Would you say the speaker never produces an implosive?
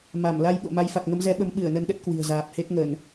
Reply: no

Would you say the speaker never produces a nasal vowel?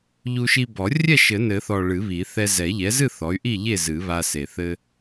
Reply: yes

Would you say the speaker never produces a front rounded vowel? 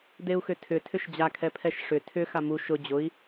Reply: no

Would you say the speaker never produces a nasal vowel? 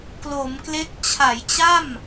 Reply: yes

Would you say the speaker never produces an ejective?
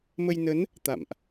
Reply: yes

